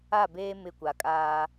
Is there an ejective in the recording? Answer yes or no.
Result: yes